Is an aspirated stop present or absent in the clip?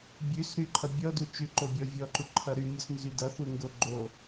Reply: present